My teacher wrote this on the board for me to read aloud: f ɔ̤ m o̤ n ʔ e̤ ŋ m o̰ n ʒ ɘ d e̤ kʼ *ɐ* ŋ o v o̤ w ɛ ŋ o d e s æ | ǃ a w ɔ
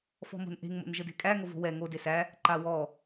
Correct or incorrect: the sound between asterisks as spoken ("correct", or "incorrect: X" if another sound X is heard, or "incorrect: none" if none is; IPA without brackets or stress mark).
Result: incorrect: æ